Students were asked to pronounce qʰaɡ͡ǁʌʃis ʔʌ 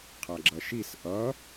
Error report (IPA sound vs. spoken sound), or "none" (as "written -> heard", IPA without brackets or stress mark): none